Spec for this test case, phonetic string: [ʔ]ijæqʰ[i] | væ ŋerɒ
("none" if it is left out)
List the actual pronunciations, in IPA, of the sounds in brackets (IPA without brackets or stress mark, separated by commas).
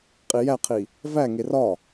qʼ, i